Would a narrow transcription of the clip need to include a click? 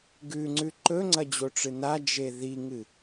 yes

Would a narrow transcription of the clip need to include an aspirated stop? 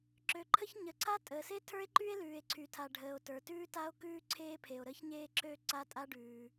yes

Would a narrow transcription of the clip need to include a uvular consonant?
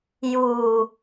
no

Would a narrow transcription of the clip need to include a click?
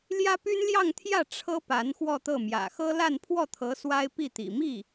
no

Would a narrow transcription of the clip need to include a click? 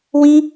no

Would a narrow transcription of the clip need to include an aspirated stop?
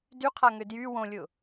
yes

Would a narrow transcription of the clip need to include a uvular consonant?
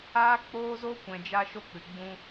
no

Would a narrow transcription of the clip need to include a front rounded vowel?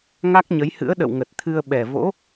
no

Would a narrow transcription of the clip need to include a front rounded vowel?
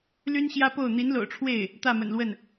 yes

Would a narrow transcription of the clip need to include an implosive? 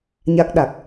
yes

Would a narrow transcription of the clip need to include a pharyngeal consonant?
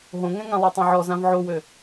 yes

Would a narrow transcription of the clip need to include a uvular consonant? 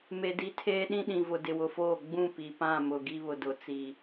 no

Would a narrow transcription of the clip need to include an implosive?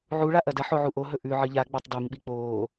yes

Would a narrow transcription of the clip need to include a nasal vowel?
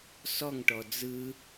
no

